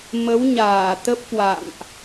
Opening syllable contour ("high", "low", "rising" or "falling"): rising